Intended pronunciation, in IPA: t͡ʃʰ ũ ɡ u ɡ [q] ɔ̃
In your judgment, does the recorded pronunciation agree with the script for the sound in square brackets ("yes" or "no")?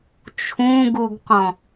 yes